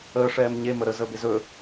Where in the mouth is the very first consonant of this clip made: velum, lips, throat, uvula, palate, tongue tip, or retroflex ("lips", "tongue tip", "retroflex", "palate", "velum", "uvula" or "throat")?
retroflex